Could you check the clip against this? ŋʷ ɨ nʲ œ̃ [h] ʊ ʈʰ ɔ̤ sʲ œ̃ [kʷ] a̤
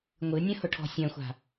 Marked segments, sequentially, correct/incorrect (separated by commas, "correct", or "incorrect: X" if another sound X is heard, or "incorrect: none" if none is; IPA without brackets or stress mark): correct, incorrect: xʷ